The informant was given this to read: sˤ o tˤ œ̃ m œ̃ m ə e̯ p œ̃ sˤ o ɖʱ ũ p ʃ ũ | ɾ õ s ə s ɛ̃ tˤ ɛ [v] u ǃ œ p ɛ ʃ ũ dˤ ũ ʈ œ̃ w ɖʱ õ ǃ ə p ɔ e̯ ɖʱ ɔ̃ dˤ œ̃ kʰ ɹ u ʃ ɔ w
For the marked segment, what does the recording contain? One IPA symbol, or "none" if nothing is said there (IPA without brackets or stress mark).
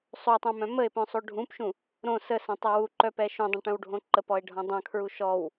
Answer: w